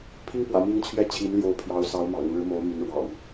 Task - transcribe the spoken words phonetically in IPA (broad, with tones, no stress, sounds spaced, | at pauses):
pʰ i˥ ŋ p w ä̰˨˩ m i˧˥ ŋ t͡ɕʰ ɥ ɛ˥˩ t͡ɕʰ i˧˥ n l j o˧˥ ʊ̯ pʰ j ɑ˧˥ ʊ̯ s ɑ˧˥ ʊ̯ m ɑ̰˨˩ ŋ ɻ ɻ̩˧˥ m o˧˥ ʊ̯ m y˧˥ n ɻ w ɑ̰˨˩˦ ŋ